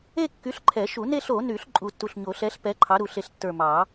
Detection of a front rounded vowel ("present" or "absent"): present